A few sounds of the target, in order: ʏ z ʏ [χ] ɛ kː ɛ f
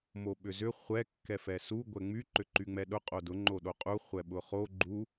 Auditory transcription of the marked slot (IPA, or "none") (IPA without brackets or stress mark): χʷ